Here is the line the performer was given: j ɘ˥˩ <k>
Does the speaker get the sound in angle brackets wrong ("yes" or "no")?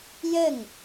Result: yes